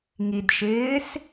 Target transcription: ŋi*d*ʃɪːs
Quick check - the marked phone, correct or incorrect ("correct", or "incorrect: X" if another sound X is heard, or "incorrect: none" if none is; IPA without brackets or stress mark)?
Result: correct